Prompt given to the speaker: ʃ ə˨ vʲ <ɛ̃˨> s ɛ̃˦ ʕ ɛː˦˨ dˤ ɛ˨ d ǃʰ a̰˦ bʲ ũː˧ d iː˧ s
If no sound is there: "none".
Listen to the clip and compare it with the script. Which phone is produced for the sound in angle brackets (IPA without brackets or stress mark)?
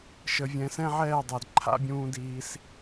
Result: ɛ̃˨